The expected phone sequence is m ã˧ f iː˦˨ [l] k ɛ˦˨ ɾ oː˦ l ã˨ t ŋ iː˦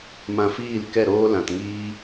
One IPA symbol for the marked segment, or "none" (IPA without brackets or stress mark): l